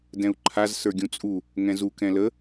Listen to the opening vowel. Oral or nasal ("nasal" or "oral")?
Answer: nasal